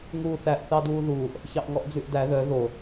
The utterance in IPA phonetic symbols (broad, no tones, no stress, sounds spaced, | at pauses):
ŋ uː θ æ ʔ θ ɑ d uː ð uː ʔ | ç ɑ ʔ ŋ ɔ ʔ d͡z ʉ ʔ d æ ð œ ð o